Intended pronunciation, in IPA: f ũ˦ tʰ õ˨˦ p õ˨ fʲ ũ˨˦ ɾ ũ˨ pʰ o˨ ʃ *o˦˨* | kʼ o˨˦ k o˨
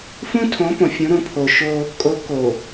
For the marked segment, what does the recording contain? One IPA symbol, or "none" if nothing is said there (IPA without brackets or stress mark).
o˦